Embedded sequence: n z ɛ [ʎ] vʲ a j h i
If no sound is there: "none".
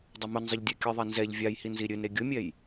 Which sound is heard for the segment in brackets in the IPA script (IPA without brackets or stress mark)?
ʎ